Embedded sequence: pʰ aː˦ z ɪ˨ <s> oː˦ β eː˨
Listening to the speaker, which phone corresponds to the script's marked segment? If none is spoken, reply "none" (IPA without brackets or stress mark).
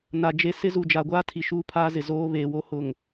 z